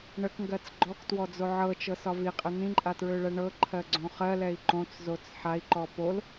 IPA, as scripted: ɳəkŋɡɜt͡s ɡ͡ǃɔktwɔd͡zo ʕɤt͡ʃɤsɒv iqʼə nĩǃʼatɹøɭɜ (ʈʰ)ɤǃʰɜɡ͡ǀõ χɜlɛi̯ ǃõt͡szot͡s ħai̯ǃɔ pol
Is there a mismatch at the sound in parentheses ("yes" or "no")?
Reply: yes